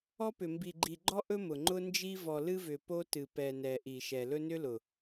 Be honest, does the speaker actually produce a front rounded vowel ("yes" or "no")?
yes